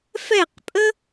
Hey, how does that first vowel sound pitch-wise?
falling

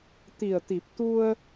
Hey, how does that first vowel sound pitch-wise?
low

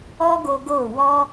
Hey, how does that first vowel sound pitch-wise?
high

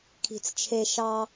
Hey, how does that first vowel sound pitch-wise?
low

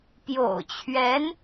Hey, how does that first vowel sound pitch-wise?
low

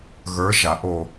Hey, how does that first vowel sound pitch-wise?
rising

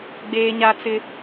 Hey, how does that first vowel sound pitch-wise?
high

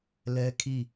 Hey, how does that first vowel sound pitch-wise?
high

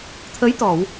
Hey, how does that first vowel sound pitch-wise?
rising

